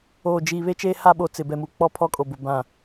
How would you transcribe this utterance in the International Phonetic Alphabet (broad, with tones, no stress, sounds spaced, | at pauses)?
oː˨ d͡ʒ i˨ β e˦ t͡ʃ eː˦ h a˦ ɓ o˨ t͡s ɪ˨ b ɛ˨ m u˨ k͡p ɔ˦ pʰ ɔ˦ kʼ o˨ b ʊ˨ b ã˨